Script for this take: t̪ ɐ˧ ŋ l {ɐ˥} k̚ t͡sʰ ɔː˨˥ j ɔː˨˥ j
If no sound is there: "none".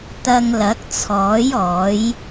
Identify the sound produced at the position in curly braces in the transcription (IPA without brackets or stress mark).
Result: ɐ˨˥